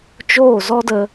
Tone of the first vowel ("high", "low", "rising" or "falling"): falling